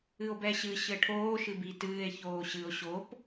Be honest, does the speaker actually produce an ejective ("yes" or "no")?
no